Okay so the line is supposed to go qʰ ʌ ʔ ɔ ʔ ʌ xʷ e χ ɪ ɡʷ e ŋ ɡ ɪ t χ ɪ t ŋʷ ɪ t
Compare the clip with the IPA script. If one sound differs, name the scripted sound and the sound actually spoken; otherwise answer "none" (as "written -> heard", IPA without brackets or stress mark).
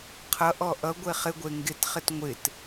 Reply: xʷ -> ɡʷ